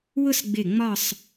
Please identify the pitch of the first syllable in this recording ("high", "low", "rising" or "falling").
falling